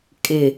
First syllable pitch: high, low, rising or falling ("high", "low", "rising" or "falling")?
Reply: low